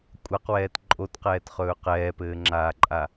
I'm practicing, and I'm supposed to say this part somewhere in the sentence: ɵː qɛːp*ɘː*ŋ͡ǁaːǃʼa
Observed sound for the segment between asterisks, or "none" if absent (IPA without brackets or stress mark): ɘː